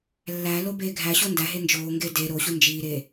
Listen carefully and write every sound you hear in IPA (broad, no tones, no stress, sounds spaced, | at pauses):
lː æ l o b eː ɡʱ æ ɕ o n d æ ɦ e n d͡ʒ oː ŋ ɡ e d e ɾ o ɕ u n d͡ʒ iː ɾ e